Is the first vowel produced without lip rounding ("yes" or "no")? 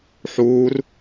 no